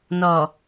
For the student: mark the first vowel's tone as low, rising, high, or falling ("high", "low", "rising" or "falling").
low